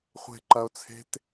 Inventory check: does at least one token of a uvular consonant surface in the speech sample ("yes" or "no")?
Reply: yes